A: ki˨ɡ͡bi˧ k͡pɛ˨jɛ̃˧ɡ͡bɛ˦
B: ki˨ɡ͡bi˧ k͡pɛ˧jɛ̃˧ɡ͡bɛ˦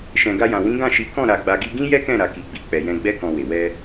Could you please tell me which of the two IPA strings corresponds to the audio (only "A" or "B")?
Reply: A